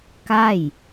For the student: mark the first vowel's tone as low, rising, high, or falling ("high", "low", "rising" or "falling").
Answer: falling